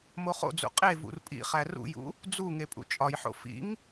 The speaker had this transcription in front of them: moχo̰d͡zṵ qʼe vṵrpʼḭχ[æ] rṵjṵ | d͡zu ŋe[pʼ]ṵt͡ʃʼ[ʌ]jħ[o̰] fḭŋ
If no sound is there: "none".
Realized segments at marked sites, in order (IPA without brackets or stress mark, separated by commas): æ, pʼ, ɒ, o̰